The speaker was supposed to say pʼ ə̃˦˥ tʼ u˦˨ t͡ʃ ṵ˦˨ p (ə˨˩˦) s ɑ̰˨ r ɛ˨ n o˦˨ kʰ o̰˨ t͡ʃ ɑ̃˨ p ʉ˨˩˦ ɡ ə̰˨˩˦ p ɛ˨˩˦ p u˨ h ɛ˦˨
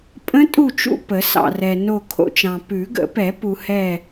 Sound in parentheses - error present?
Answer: no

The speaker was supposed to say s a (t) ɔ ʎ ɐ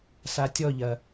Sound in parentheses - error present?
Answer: yes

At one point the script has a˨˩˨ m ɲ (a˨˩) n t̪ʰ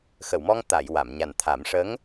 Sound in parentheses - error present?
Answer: no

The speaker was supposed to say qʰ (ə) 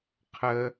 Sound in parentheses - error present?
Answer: no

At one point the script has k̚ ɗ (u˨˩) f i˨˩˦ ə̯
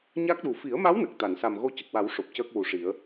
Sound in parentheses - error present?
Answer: no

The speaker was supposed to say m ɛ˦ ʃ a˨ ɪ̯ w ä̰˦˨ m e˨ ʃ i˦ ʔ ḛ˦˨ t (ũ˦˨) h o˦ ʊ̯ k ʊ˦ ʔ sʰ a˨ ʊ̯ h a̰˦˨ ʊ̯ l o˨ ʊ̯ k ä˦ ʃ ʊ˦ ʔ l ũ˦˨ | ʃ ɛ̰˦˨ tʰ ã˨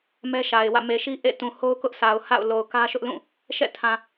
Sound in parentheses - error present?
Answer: yes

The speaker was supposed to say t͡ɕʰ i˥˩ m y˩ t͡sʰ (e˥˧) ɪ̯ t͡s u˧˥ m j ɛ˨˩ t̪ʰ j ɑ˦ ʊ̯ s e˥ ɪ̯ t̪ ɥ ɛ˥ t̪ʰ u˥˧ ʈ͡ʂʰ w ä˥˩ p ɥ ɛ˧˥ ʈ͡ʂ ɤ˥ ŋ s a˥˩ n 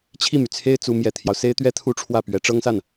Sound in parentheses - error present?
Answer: yes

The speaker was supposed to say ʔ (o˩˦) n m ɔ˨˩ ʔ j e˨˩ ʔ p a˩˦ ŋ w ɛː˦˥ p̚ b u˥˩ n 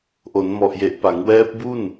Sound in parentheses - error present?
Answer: no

